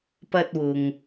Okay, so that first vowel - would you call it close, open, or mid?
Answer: open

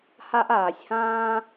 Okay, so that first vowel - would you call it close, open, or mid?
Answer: open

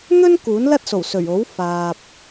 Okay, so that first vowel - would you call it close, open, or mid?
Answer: mid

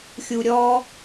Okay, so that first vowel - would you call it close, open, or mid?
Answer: close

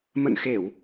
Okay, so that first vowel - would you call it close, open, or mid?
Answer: mid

